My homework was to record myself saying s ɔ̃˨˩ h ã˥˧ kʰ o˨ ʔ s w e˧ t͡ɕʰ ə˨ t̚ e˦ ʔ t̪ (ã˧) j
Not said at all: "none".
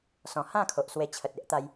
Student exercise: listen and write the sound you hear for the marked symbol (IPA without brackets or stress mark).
a˧